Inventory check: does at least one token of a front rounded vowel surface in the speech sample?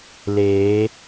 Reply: no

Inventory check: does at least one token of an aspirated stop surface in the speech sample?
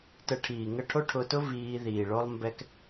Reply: yes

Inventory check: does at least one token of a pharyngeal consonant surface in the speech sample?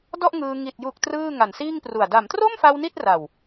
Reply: no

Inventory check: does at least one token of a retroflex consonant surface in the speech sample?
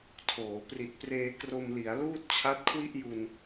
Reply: no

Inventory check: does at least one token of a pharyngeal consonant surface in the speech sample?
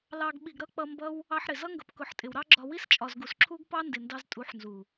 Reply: yes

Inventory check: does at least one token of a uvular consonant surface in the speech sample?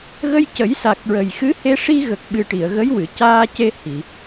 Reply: no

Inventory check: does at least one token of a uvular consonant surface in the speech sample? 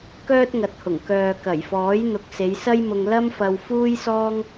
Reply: no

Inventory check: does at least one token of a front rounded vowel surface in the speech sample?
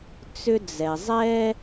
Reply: yes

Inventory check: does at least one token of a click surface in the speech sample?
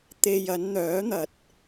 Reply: no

